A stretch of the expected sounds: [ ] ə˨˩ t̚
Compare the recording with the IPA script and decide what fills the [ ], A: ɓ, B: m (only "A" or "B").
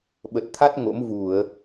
A